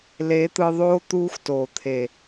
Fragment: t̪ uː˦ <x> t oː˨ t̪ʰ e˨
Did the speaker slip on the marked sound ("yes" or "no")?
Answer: no